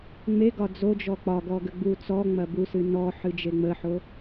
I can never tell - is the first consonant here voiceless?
no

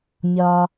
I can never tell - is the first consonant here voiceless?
no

